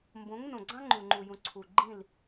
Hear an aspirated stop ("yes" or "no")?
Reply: yes